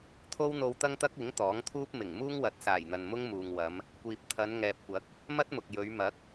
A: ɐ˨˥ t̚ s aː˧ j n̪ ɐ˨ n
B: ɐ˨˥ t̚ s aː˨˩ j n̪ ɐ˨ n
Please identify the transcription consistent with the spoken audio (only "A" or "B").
B